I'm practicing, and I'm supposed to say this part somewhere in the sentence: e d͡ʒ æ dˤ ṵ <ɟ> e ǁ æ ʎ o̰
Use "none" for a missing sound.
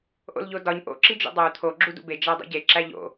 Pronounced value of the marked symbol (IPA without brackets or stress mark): ɟ